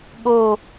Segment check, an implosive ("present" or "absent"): present